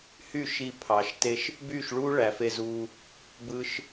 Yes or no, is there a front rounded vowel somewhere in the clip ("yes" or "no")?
yes